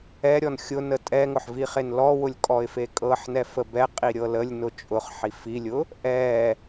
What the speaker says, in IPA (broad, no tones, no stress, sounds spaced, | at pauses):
ɛ ɾʲ ɔ n xʲ ʊ n ə tʼ ɛ ŋ ʊ ħ v i χ e n l ɔ w ʊ lʲ kʼ ɔ ɪ̯ f e kʼ ɤ ħ n ɛ f ə b ɛ qʼ i ɾʲ ɤ l ə lʲ n ʊ t͡ʃʼ ʊ χ ħ i f i lʲ ʊ | ʔ ɛ